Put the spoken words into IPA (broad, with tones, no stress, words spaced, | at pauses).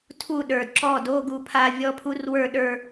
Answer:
tʰu˥˧ɗə˞˨˩d ǁɔ˥˩ do˧˥˧ɡu˧pʰa˧ vʲɔ˧˥˧pʰu˦˥r wə˞˥˧ɗə˞˥˧